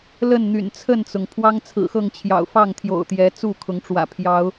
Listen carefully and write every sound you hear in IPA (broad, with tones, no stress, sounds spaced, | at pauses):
l ə˥˨ n n̪ y̰˨˩ n t͡sʰ ə˥˨ n t͡s ʊ˩ ŋ pʰ w ɑ˦ ŋ t͡sʰ ɹ̩˨˩ x ɤ˥˨ ŋ t͡ɕʰ j ɑ̰˨˩ ʊ̯ f ɑ˥˨ ŋ t̪ʰ j o̰˨˩ ʊ̯ t̪ j ɛ˨˦ t͡s u˥˨ kʰ ʊ˨˦ ŋ ʈ͡ʂ w ä̰˨˩ pʰ j ɑ˨˦ ʊ̯